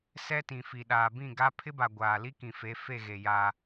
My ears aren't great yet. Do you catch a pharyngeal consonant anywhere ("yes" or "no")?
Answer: no